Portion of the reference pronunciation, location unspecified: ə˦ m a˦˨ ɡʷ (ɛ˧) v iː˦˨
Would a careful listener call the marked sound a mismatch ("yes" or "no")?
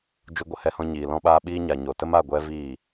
yes